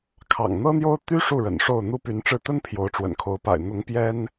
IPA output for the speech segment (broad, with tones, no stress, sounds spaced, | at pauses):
kʰ ɑ̰˨˩ ŋ n̪ ɤ˥ n̪ j o˥ ʊ̯ t̪ y˥ ʂ u˥˩ ɻ ə̰˨˩ n ʂ o˥˩ ʊ̯ n̪ u˥ p y˧˥ n ʈ͡ʂ ɻ̩˥˩ t̪ ə˥ n pʰ j o˧˥ ʊ̯ ʈ͡ʂ w ə̰˨˩ n kʰ o˧˥ ʊ̯ p a̰˨˩ ɪ̯ n̪ ʊ˧˥ ŋ p j ɛ˥ n